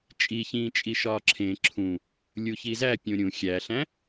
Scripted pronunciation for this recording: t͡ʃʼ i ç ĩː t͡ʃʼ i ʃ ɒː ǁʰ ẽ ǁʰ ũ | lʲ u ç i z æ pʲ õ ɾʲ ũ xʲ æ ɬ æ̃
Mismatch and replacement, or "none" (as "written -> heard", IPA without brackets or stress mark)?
none